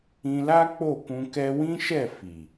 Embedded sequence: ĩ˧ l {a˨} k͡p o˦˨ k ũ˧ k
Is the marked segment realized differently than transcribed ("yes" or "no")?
yes